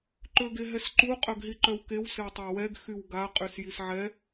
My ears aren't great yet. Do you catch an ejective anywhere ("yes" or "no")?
yes